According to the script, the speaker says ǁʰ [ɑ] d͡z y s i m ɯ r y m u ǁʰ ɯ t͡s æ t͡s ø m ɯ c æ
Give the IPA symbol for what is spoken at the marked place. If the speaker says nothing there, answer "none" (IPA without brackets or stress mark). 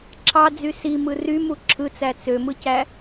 ɑ